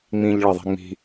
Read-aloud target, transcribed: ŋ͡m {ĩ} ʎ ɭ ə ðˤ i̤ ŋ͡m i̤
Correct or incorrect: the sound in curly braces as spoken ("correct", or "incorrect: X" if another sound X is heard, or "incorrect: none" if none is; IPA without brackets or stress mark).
correct